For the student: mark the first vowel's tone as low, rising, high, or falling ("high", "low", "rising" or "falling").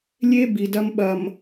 high